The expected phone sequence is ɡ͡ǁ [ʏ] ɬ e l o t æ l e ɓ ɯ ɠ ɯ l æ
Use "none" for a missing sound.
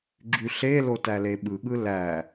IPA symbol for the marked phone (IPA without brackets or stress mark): y